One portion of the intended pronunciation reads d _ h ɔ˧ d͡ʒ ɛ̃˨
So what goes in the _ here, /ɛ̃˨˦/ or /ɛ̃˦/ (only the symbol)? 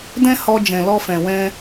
ɛ̃˦